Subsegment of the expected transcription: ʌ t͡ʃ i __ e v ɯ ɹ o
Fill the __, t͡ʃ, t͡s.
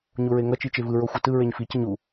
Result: t͡ʃ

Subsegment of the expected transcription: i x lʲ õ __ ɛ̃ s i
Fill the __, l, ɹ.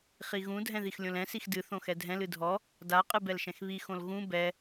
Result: l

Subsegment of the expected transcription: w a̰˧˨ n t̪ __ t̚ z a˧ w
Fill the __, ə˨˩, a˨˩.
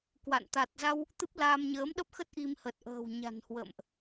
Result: a˨˩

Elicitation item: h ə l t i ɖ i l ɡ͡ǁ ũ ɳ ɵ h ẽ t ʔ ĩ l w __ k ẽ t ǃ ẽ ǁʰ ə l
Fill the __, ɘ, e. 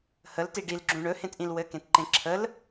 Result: ɘ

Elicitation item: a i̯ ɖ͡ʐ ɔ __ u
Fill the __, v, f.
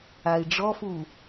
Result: f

